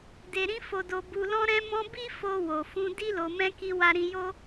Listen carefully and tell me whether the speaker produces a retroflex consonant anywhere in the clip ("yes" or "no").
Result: no